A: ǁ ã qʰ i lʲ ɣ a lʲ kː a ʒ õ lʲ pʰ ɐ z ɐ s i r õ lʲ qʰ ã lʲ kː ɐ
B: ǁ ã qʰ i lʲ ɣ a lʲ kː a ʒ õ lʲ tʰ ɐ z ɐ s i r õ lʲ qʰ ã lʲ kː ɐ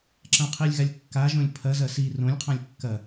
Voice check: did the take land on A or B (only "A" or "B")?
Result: A